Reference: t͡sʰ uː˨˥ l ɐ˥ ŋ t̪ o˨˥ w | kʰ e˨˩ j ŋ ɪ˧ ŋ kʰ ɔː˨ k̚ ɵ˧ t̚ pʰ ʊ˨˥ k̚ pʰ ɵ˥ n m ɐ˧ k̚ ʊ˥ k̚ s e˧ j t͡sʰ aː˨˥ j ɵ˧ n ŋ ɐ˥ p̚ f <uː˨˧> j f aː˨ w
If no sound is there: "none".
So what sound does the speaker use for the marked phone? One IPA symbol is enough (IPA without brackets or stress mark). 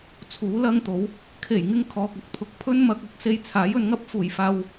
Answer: uː˨˩